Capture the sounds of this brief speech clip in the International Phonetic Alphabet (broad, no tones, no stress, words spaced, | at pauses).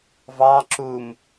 vɑ ǁum